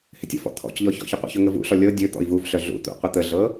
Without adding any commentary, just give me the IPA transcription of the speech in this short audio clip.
h ɪ tʲ ə̰ f ɔ̰ t̪ʰ ɔ̰ c ʎ ɔ ç ɔ̰ ç ə qʷ ə̰ ç ɵ ŋ ə v ṵ ɬ ɔ lʲ ɤ dʲ ɵ t̪ ɔ̰ i̯ v u v ɬ œ ɮ ṵ t̪ ṵ qʷ ə t̪ ə ɮ ɤ

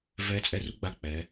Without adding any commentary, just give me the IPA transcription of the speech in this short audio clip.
v ɛ˨˥ t͡sʼ ɛ˧˩ r u˥˨ ɡ͡b a˧˩ k͡p ɛ˩˧

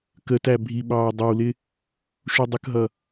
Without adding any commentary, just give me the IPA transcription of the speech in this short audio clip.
k ə t æ bʱ i ɓ ɑː dˤ ə w l ɪ | ʃ u dˤ ə k ɦ ʌ

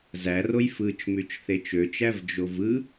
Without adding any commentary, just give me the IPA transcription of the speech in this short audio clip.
z æ r o j f ɯ t͡ʃ m y t͡ʃ θ e t͡ʃ ø t͡ʃ æ v d͡ʒ o v ɯ

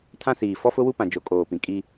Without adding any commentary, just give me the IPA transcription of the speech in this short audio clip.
tʰ ã˦ s iː˨ f ɔ˦ f ʊ˦ w u˦ p ã˨ d͡ʒ o˨ kʼ oː˨ p ĩ˨ kʼ i˦

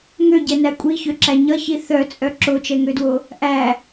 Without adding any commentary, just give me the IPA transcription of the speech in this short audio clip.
ŋ ø ɟ ɛ n æ kʷʼ i ç ø ǁ æ ɲ ʌ ç i θ œ t͡sʼ œ ǁ o t͡ʃ ɛ ŋ ø d w o | ʔ æ

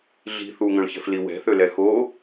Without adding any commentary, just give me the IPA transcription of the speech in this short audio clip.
ɮ i̤ θ u ŋ œ̃ ɭ ç ɛ̤ f l i w ɛ̤ θ ø l ɛ x o

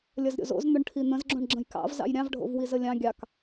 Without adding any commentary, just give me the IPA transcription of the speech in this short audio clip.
lʲ ɐ z ɾʲ o̰ z o̰ z n̪ ʊ ɳ ʈʰ i n̪ ə̃ z ɡ͡ǁ õ ɳ ɡ͡ǁ ə̃ j k ɑ̰ v z ɑ̰ j ɾʲ ɑ̃ v ɖʱ o̰ v w i z ə lʲ ɑ̃ ɡʲ ɑ k

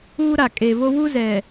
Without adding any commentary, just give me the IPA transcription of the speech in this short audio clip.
uː˦ ɾ a˨ kʼ e˨ v o˦ w u˦ z ɛ˨

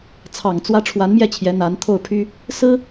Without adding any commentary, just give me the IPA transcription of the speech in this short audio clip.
t͡sʰ ɑ˨˩ ŋ t͡s w ä˧˥ ʈ͡ʂʰ w a˧˥ n m j ɛ˥˩ t͡ɕʰ j ɛ˧˥ n̪ a˧˥ n t̪ʰ o˥˩ ʊ̯ pʰ y˥ | s ɹ̩˥

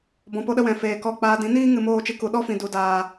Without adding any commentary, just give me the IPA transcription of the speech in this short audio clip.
b ɔ̃˧ p o˦ ɗ ə˦ w ɛ̃˧ f eː˧ k ɔ˦˨ k͡p aː˦ d ĩ˨˦ n iː˦ ŋ ɨ˧ m oː˦˨ t͡ʃ ɨ˧ k u˨ ɗ ɔ˦ f ĩ˨ d u˨ d aː˨

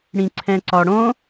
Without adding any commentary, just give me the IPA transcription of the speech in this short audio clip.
ɽ ĩ ǀʰ ɛ̃ ǀ ɒ ɽ õ

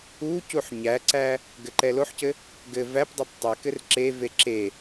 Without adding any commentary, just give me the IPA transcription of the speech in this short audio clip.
u c u ħ ɲ æ ǀ æ | ɡ ɘ ǃ ɛ l o ħ c ɘ | ɡ ɘ v æ p dˤ o p tˤ ɘ k ɘ r ǁ e v e ǁ e

